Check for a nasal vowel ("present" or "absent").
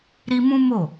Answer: present